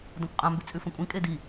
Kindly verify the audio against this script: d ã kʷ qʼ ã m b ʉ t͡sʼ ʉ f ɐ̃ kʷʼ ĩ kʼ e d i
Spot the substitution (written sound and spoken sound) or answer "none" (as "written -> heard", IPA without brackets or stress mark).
none